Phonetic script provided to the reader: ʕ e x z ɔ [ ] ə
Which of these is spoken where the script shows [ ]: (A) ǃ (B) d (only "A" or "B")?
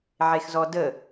B